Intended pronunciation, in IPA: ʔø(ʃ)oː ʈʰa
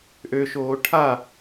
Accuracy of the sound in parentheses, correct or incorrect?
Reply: correct